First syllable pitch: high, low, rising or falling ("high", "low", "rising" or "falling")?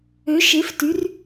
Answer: rising